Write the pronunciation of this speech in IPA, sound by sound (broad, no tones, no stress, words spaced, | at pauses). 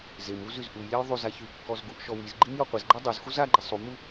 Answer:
zemu zyzʔujlʲaj ðˤyza çy kːɔzɡuʔʃɔ wizɡ͡ǃim jɔqʷezɡ͡ǃa dˤuz xuzaɡ͡ǃi sˤumu